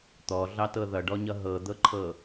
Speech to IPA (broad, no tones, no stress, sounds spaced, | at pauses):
t̪ ɔ ɮ ɑ t ɤ ð ʌ ɖ ɔ ɲ ʌ ɦ ɤ d̪ ɤ ǃʰ ɤ